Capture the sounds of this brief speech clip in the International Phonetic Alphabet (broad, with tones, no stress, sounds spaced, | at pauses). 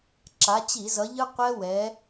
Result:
ǁ a˨˦ t͡ɕ i˧˩˧ z ʌ˨˦ ʎ ɯ˦ qʷ ɛ˦ w ɛ˨˦